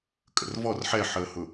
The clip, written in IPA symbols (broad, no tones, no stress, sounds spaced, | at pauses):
kʼ ə̰ r v ɔ r ħ ɛ ħ əː h ʊ